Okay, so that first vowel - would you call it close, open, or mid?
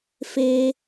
mid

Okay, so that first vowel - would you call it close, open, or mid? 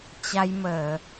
open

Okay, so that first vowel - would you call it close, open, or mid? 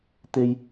mid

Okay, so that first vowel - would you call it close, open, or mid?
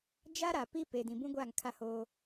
open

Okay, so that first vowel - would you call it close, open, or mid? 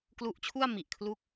close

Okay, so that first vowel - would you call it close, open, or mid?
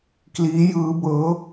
close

